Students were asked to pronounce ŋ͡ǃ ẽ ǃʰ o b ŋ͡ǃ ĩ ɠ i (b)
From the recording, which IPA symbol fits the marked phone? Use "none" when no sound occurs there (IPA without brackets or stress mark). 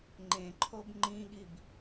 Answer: b